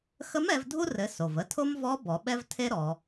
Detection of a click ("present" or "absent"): absent